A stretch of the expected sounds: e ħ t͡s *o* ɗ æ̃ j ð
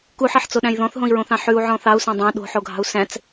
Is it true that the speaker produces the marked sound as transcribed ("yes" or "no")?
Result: yes